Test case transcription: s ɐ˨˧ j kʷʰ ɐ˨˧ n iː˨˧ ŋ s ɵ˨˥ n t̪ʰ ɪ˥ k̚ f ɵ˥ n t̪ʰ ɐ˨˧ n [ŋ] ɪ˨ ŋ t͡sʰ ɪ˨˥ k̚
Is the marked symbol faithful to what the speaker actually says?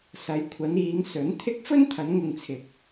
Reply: yes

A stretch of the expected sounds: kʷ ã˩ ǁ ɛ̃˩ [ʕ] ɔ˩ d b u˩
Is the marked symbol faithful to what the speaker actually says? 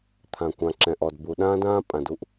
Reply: no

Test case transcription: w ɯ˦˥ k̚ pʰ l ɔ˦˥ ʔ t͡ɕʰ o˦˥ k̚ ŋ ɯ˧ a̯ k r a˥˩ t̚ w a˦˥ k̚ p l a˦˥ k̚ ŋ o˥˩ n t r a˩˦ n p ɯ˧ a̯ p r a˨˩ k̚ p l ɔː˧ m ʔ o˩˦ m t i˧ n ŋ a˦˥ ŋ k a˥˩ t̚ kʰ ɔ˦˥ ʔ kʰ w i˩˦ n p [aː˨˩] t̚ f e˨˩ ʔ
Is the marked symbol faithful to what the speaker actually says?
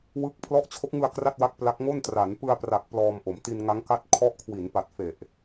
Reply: no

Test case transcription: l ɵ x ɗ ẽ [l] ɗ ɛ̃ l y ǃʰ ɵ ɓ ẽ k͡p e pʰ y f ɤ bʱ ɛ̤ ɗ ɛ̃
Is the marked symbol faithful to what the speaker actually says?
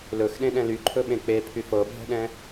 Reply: no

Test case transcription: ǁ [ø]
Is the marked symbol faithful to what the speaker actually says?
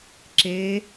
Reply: no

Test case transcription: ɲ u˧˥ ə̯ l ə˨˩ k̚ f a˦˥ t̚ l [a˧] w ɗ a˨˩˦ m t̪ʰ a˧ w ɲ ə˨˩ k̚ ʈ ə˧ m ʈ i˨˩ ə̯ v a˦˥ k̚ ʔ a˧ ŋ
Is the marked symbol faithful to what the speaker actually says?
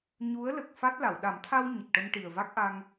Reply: no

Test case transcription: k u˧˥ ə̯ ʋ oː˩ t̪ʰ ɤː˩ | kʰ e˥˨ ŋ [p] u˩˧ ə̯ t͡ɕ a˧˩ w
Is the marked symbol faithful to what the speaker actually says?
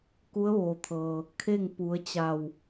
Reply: yes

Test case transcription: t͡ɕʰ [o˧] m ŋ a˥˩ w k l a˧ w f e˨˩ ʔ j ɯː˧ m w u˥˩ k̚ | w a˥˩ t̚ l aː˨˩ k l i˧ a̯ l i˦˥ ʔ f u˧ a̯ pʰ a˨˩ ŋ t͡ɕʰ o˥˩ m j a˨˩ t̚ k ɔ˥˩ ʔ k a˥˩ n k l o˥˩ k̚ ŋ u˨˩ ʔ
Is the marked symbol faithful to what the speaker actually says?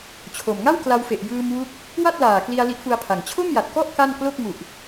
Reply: no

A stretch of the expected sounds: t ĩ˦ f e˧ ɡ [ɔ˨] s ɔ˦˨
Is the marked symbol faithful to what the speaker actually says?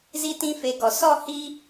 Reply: yes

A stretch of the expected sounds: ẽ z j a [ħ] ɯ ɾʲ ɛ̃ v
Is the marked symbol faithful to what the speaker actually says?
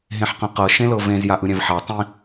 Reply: no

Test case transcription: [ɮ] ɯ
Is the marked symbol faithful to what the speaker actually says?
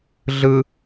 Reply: yes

